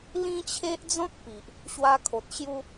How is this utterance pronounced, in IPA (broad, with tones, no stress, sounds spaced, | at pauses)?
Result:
l ĩ˦ t͡ɕʰ e˦ ʔ d͡z ɔ̃˦ k̚ p i˨ ʔ | ɕ w a˧ kʰ o˨ t̚ ɕ j u˧